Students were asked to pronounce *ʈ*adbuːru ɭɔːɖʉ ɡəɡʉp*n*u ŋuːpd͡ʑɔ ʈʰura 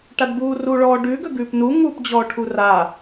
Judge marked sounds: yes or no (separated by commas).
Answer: yes, yes